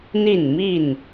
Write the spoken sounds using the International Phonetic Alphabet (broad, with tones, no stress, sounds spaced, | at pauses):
n̪ i˥˨ n m i˥˨ n